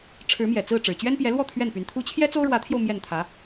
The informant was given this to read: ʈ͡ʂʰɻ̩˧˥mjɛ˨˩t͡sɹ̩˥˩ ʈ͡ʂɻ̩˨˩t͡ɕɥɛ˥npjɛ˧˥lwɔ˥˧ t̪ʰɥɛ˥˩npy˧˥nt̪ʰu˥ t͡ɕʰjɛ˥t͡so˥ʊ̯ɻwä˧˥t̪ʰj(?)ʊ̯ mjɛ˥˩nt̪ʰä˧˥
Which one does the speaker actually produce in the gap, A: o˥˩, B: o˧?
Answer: B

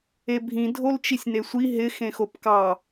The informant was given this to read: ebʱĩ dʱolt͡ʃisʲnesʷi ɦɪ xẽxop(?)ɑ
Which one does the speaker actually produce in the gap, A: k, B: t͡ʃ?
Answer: A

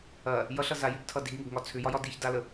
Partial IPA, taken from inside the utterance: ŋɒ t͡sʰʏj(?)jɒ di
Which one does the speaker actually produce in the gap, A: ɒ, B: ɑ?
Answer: A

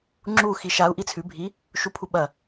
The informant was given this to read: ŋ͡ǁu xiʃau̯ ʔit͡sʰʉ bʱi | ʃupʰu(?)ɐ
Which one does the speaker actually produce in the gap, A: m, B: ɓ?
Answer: B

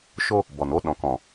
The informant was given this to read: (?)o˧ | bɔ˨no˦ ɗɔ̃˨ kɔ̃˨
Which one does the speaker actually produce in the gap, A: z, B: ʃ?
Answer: B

